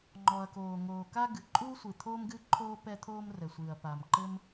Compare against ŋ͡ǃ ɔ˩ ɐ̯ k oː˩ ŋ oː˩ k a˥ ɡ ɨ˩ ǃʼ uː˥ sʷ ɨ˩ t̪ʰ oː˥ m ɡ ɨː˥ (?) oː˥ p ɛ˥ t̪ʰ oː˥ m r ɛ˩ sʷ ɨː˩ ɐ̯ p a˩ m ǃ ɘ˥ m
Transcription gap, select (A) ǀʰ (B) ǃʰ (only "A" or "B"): B